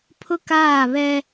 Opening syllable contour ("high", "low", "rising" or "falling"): high